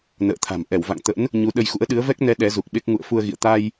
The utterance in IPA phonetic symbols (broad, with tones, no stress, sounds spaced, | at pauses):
n ə̰ː˧˨ t̪ʰ a̤˨˩ m ʔ ɛ˧˩ w v a̰˧˨ ŋ t̪ ə̰˧˥ n | ɲ u˨˦ ɗ ə˧ j x ṵ˧˥ ə̯ ɗ ɨ˨˦ ə̯ v ɛ˦˥ k̚ n ɛ˨˦ ɗ ɛ˨˦ z u˨˩ k̚ ɓ e˦˥ k̚ ŋ ṵ˧˨ ə̯ f u˧ ə̯ ɣ ḭ˧˨ ə̯ t̪ a˧ j